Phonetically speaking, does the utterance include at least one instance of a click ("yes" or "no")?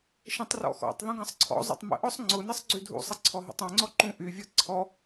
yes